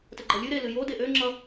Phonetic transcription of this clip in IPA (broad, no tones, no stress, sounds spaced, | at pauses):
t ə ɡ͡ǃ ʌ lʲ ɨ ɾ e l ɨ j o d e ʔ ø ŋ͡ǁ ʌ